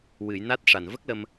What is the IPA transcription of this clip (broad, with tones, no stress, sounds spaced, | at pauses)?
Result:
w ɨ˨˩˨ j n a˦˥ t̚ ʂ a˨˩ n v ə˦˥ k̚ l ə˧ m